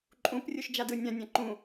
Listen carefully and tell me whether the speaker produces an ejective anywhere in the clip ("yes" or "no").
yes